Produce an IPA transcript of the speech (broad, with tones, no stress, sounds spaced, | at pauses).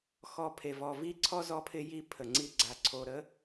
x ɔ˨ pʰ e˨ v ɔ˨ v i˦ ǀʰ ɔ˦ z ɔ˦ pʰ ɪ˦ j i˦ pʰ ə˨ ŋ͡ǀ i˦ ɡ͡ǀ a˨ ǀʰ o˨ ɾ ə˦